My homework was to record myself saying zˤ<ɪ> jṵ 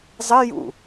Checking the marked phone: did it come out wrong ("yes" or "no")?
no